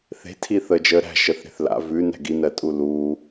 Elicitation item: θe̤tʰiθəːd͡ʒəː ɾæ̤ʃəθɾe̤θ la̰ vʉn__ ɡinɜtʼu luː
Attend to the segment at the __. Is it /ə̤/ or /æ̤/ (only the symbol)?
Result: æ̤